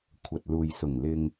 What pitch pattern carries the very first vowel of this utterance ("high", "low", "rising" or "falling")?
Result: low